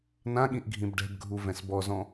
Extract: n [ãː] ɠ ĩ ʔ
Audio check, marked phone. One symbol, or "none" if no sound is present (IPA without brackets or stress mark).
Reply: ã